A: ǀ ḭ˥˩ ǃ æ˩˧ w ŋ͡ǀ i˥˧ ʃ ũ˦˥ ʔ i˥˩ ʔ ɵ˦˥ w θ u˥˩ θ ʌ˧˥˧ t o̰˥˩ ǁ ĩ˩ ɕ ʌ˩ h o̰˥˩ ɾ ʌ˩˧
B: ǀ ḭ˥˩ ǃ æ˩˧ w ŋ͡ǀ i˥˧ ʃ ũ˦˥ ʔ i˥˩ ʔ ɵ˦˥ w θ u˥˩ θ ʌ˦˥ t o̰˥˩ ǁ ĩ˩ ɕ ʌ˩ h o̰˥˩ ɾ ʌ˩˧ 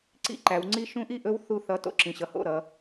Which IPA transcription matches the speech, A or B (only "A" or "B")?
A